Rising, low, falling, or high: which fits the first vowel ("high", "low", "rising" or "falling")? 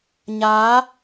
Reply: rising